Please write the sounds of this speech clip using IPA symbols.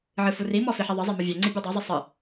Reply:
ʕ ɨ f u r i m ɔ f i ħ i ðˤ ɘ zˤ e m ɘ vʲ ɛ ŋ͡ǀ i bʲ ɔ dˤ ɛ zˤ i sˤ ɨ

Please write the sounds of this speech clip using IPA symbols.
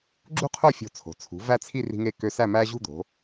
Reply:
ɡ͡ǁ ṳ˥ qʰ o˥˧ fʲ o̤˧˩ t͡sʰ o̤˩˧ t͡sʰ ṳ˩˧ v æ˥˧ t͡sʰ i˥˧ r i̤˧ ŋ e˧ k ø˧ s æ˥˧ m æ˥ ʑ ṳ˥˧ d̪ o̤˩˧

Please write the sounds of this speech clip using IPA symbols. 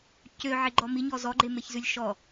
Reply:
c ø ʕ e ɡ͡ǃ ɔ m i ɲ ɔ z ɔ ɡ͡ǃ e m e ç z ʉ lʲ ʃ ɔ

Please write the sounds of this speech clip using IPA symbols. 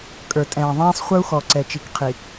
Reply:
kʼ ə˞˨ tʼ ɛ̃ː˨ ðˤ ɛ̃ː˦ sˤ χʷ ə˞˦ u̯ x ɔ˨ ǀ ɛ˨ t͡ʃ i˨ k qʰ i˨

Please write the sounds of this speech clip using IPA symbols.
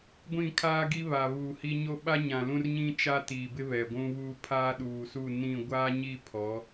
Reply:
ɡʷ ĩ˦˨ kʰ aː˦ ɡ i˦ β a˨ β uː˨ h i˦ ɲ o˦ ɓ a˦ ɲ ã˨ l ũ˦ r ɲ ĩ˦ t͡ʃ a˦ t iː˨ b ɪ˦ β ɛ˨ ɡʷ ũ˦ β uː˦ pʰ aː˦ ɗ uː˨ s u˦˨ n ĩ˦˨ ɡʷ aː˦ ɲ i˦˨ pʰ ɔ˨˦

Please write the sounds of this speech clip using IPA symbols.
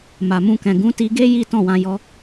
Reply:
m a˨ m ũ˧ k ɛ̃˨ ɡ ũ˨˦ t i˧ ɡ e˦ j i˦ t ɔ̃˦˨ w ã˧ j ɔ˧

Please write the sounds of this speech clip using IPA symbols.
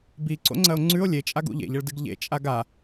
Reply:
b i ǀ o̰ ŋ͡ǀ ɐ o̯ ŋ͡ǀ ʉ o̯ lʲ e t͡ʃʼ a ɡ ṵ ʎ ḛ ʎ ɐ ɭ d ɨ ɡ ʎ ḛ t͡ʃʼ a ɡ a

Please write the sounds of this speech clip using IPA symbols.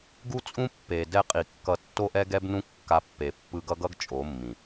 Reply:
ɡ u˦ t͡sʼ ũ˦ pː e˨ d ɛ˧ qʼ i˨ kː ʌ˧ tː o˦ ʔ ɛ˦ ɡ ɛ˦ b n ũ˦ kː a˧ pː e˨ pː ɯ˧ ɡ ʌ˦ ɡ ʌ˦ ɡ t͡ʃʼ o˨˦ mː ĩ˨

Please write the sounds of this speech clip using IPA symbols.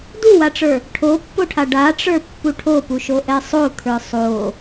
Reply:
d u w a ʈ͡ʂ ə˞ | ʈʰ o pː o ʈʰ a ɖ a ʈ͡ʂ ə˞ pː u ʈʰ o p u ʃ o ʔ ɛ sˤ o t̪ʰ ə˞ sˤ o

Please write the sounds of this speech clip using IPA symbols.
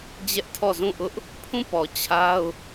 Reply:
d͡ʑ ɛ˦ ʔ tʰ ɔ˦˨ z ũ˦˨ ʔ ʊ˦ ʔ | pʰ ũ˦˨ p ɔ˨ t͡ɕʰ a˦ ʊ̯

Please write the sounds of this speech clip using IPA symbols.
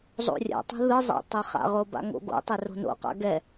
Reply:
zˤ o̰ rʲ a̰ tˤ o̤ ð ɯ zˤ a̰ tˤ e χ a̰ ʁ o b a̰ ŋ o̰ ɡ o̰ tˤ ɛ r o̤ n o̰ q a̰ ɡ ɛ

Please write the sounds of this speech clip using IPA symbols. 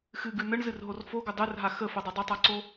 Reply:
x ɨ ɡ ʉ n ə ɳ z ɨ r ɦ o r f o ɡ ʊ dˤ ʉ r ɦ a x ə f ʊ dˤ o dˤ ʊ tˤ a ǀ o

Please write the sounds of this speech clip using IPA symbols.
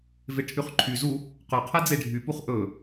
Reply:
v e ʈʰ y χ ǃʰ y z u | q œ qʰ ɛ d͡z e ɖʱ y p u χ ʔ ɵ

